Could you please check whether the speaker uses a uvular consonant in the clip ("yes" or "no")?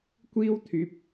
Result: no